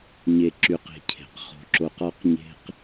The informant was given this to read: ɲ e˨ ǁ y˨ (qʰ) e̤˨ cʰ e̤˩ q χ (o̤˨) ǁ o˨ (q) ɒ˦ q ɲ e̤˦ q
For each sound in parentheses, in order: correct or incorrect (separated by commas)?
incorrect, correct, correct